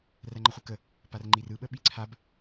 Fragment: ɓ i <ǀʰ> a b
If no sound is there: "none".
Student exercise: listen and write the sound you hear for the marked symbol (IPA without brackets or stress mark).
ǀʰ